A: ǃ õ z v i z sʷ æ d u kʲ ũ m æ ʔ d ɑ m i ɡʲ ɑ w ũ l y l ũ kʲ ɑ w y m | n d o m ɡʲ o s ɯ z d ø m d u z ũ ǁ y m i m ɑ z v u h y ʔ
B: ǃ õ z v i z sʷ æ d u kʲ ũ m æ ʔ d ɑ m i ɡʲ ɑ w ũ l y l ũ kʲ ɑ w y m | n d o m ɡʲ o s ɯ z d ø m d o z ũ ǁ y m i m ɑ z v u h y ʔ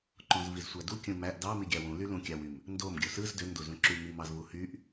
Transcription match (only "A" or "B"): B